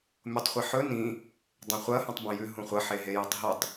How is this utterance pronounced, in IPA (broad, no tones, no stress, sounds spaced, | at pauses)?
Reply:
mʲ o tˤ χʷ i ħ ɵ n ĩ | dˤ ẽ χʷ ɐ h ũ tˤ b ɐ̃ j ʉ ɦ ũ χʷ ɐ ħ e ɦ e j ɐ tˤ ɦ u tˤ